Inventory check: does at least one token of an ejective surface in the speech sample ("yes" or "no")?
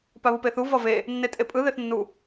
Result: yes